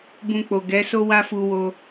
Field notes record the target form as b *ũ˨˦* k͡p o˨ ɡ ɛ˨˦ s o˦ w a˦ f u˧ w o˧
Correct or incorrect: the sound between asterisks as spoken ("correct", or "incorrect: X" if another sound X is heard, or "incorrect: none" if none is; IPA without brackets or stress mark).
incorrect: ũ˧